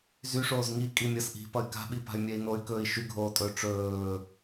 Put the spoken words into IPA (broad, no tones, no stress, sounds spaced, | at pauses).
z y ʂ oː z ŋ i kʼ i mʲ ʌ s ʔ i̤ p ʌ y̯ k a̤ ɓ i p a̤ y̯ mʲ ɛ i̯ n o y̯ k ɵː i̯ ʃ y ɡʱ oː tʼ ɵː ʈ͡ʂ ɵː